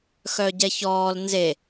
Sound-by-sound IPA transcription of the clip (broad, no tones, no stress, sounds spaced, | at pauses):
x œ ɟ ɛ ç ɔː l n z e